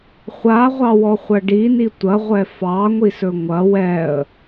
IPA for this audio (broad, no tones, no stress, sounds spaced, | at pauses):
χʷ a ʁʷ ɑ w ɔ χʷ ɐ ɖ i n i tʷ ɐ ʁʷ ɛ f ɑ ŋʷ i s ɵ ŋʷ ɐ w ɛ ə̯